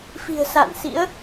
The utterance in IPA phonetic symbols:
f i̤˨˩ ə̯ s a̰ː˧˨ n s ḭ˧˥ ə̯

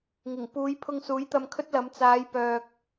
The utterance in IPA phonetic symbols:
ŋ ɪ˨˩ ŋ p uː˨˧ j pʰ ʊ˧ ŋ s uː˨˥ j t̪ ɐ˧ m kʰ ɵ˥ t̚ l ɐ˨˧ m t͡s aː˨˧ j p œː˨ k̚

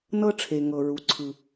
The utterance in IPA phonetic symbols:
n ɤ˥ ʈ͡ʂʰ e˧ ŋ ɤ˧ ɹ u˧ ǀʰ ɯ˧

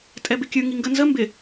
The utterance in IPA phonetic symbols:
tʼ ɛ b ɪ kʲ ɯ ŋ i ŋ ɡ ə n z ə m b ɪ

